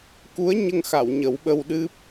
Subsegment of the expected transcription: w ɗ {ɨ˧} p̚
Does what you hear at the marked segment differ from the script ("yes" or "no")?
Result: yes